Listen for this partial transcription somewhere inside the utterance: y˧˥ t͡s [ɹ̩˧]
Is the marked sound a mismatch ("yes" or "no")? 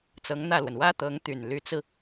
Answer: no